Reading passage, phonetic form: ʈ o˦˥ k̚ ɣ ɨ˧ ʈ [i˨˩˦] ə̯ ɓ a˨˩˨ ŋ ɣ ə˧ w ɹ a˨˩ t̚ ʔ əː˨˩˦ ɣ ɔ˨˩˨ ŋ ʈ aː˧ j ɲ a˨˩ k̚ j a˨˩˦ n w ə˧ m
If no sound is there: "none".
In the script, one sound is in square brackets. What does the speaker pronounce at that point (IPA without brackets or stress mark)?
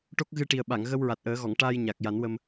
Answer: i˨˩